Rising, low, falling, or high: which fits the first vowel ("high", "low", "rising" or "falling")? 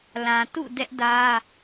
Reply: low